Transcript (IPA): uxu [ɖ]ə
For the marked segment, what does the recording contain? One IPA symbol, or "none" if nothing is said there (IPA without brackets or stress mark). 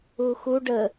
ɖ